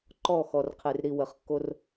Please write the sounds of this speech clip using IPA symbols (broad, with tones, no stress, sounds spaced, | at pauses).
ǃ ɔ˦˨ x ɔ˨ r qʰ e˨ r ɾ i˨ w ə˨ χ kː o˦ r